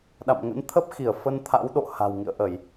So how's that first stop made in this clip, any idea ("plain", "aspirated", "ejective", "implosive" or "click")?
implosive